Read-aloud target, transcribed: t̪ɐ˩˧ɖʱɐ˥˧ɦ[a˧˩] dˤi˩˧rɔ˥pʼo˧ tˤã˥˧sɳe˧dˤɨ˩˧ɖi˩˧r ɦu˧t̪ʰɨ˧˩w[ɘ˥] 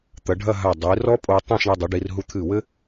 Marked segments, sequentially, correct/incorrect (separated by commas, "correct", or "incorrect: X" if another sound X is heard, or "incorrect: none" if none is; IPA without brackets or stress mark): correct, correct